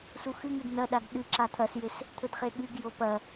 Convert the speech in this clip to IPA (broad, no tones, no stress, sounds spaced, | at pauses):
s u x ɨ ŋ ɨ d n ɐ ɗ a ɡ ɗ ɨ ǁ a t̪ʰ ɐ s j e s | t̪ʰ ɵ d χ e ɠ ɨ ɡ j o p ɐ